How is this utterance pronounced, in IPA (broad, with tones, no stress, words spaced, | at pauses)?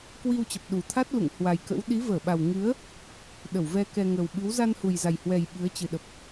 kwi˧wt͡ɕə˨˩p̚ ɗu˨˩t̪ʰa˦˥t̚ lṵ˧˨ŋhwa˨˩jkə̰˧˥w ɗi˨˦vəː˧˩ɓa˨˩wŋɨ˨˦ə̯ | ɗə˧˩wvɛ˧ kɛ˧ ŋə˨˩wɓɨ˨˦w za˧nhu˨˩jza˨˩jhwɛ˨˩j ɓɨ˨˦ə̯t͡ɕɨ˨˩ɗə˨˩p̚